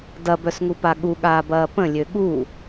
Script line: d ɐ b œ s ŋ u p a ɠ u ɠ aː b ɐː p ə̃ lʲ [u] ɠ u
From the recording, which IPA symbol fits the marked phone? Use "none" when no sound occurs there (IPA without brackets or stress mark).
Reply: ø